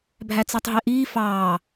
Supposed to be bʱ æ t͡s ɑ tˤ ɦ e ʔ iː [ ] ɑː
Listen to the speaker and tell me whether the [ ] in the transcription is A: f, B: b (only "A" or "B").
A